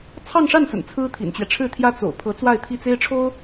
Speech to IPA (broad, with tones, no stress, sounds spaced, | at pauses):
t͡sʰ ɑ˥˧ ŋ ʂ a˥˩ n s ə̰˨˩ n t͡sʰ ɹ̩˥ t̪ʰ ḭ˨˩ n t͡ɕ ɥ ɛ˦ ʈ͡ʂʰ ɻ̩˥˩ t̪ʰ j ä˥ t͡s o̰˨˩ ʊ̯ pʰ ɤ˧˥ t͡s w a˥˧ ɪ̯ t̪ʰ i˥˩ t͡s e˥ ɪ̯ ʈ͡ʂʰ o˥ ʊ̯